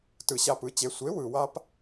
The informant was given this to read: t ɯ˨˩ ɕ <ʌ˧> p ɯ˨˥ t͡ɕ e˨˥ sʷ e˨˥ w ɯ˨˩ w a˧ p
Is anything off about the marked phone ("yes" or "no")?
yes